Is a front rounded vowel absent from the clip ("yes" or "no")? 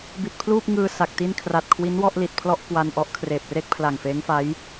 yes